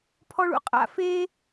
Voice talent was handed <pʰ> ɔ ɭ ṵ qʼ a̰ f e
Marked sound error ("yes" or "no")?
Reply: no